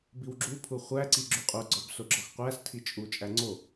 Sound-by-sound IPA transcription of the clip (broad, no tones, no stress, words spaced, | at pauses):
biwɡ͡ǁu pʰuχʷæ ǀiɡ͡ǁuqʼu ɡ͡ǀɒbsoɡ͡ǁɒxqʷæs tʰit͡ʃʼu t͡ʃʼæŋ͡ǀo